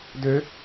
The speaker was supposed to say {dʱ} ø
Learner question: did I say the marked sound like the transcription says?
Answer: no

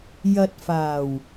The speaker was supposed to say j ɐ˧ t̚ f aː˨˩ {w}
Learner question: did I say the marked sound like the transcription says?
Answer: yes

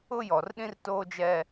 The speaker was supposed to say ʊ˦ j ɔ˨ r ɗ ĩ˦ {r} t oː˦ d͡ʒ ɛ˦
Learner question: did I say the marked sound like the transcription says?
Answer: yes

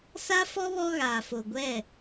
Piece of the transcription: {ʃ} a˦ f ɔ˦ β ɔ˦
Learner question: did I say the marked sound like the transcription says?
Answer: no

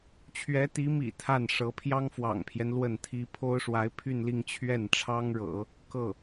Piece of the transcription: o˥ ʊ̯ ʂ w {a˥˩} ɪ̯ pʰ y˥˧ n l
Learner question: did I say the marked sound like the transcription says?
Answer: no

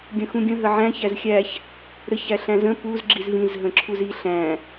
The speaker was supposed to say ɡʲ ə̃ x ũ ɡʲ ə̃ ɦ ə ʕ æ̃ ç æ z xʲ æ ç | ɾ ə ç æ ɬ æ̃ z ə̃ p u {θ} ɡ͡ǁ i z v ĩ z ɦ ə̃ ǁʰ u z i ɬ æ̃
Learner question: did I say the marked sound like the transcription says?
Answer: no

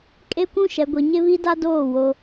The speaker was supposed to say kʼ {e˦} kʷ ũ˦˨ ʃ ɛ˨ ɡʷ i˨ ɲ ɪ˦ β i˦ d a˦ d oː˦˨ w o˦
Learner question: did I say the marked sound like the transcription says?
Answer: yes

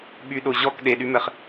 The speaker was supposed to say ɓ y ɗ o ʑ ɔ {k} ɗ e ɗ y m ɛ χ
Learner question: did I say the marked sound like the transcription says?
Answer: yes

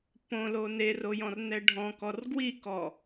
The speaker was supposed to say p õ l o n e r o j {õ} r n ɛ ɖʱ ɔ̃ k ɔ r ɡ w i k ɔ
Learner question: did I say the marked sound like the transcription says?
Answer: no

